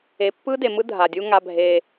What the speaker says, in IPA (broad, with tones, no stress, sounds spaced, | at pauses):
e˨ pː ɯ˦ d e˨ m ɯ˦ dʱ a˨ dʲ u˦ ŋ a˦ bʱ e˦